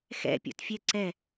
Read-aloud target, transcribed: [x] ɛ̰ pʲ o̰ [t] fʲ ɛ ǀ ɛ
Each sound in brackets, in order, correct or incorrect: correct, correct

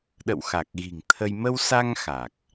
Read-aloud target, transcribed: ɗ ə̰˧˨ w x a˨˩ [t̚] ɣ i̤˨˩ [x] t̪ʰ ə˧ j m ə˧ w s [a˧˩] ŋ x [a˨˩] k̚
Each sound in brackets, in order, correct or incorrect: incorrect, incorrect, incorrect, correct

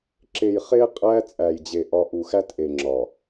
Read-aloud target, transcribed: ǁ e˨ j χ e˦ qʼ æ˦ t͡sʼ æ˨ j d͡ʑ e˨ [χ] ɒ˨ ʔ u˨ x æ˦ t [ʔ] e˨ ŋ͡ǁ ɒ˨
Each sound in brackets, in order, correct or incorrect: incorrect, correct

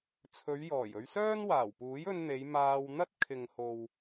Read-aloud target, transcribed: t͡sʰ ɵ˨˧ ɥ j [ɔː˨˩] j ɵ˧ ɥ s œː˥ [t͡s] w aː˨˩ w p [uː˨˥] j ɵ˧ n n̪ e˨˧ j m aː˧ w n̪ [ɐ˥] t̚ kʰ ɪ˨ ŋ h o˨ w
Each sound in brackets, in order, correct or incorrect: correct, incorrect, correct, correct

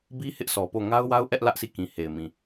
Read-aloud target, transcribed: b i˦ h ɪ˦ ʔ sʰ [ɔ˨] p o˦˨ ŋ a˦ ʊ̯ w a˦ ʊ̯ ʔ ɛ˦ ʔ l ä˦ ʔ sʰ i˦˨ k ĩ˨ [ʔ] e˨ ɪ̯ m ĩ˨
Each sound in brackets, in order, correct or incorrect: correct, incorrect

